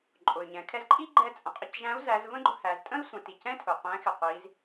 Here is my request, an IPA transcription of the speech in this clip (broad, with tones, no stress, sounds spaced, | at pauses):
ǃʼ ʊ˩ y̯ ɲ ɛ̃˩˧ kʰ ɛ˧ z ǃʼ i˥ ɡ͡ǃ ɛ˧ t͡sʼ ə̃˩ qʼ ə˧ c ʒ æ̃˧˥ u̯ z æ˧˥ z v ə̃˥ ɡ͡ǃ ʊ˧ h æ˩˧ z tʼ ə̃˥ i̯ sʷ ə̃˩˧ t i˩ c ɛ̃˥ tʰ ʊ˩ qʷ ɛ̃˧˥ x ɪ˩ qʷ i˩˧ z